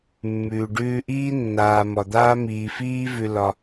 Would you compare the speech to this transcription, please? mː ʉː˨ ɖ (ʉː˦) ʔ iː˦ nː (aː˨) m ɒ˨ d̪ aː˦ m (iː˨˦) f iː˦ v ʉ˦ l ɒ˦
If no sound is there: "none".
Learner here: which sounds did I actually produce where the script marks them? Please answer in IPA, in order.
ʉː˦, aː˨, iː˨

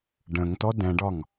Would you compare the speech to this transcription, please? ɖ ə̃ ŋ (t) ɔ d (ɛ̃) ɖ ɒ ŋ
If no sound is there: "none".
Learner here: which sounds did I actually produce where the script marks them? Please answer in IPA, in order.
t, ɛ̃

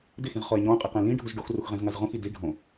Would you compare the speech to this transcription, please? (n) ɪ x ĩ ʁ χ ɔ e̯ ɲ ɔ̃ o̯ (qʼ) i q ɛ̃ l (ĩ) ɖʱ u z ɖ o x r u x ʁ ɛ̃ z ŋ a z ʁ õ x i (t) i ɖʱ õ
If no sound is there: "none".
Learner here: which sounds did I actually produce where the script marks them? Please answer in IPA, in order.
d, qʼ, ĩ, d

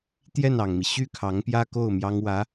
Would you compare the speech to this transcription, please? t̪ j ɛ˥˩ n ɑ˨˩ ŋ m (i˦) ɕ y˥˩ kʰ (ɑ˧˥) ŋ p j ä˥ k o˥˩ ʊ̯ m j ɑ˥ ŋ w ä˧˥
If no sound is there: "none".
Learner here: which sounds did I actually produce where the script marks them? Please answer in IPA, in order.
i˦, ɑ˧˥

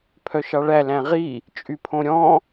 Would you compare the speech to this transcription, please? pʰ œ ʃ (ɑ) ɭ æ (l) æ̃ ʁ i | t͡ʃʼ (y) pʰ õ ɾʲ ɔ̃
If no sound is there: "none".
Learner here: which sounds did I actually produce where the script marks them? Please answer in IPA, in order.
ɑ, l, y

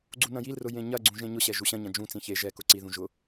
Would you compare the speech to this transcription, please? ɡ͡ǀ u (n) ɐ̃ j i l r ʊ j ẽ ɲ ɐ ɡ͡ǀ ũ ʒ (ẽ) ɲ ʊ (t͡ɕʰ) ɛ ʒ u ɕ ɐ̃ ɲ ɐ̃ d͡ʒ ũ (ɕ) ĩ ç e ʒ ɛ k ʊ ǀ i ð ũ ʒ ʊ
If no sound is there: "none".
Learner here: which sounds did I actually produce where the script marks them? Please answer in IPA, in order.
n, ẽ, ɕ, t͡s

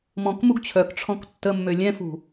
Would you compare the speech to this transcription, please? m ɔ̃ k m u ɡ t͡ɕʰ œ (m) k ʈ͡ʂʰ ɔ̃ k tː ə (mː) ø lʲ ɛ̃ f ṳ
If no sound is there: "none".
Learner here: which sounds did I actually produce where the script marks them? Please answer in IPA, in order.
none, mː

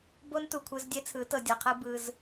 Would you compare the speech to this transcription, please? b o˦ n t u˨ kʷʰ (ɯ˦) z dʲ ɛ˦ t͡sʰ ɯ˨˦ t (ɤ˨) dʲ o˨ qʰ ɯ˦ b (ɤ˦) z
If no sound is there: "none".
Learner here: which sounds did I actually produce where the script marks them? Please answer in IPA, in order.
ɯ˦, ɤ˨, ɯ˦

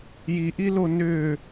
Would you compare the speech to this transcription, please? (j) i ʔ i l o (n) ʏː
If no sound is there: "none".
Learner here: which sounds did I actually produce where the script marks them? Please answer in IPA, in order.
j, n

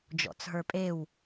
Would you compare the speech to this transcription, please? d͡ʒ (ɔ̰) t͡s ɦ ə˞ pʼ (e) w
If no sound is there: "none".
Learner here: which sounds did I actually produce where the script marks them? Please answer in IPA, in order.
ɔ̰, e

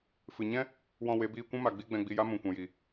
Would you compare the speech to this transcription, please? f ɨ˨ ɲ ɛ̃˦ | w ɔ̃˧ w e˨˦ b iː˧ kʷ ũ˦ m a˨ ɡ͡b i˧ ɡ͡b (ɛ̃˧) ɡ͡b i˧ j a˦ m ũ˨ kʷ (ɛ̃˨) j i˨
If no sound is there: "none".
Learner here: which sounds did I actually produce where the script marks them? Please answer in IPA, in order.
ɛ̃˧, ɛ̃˨

